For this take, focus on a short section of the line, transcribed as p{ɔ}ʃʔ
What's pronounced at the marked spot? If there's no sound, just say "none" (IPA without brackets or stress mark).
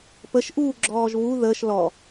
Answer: ə